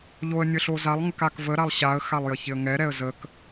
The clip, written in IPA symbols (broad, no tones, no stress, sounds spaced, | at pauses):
ʎ o ə̯ nʲ ə ɬ o z a lˠ ŋ ə k a k v ə ɾ a lˠ ɕ a ə̯ x a lˠ j ə ç ɪ ə̯ ŋ ɛ ɾ ɛ ə̯ z ə k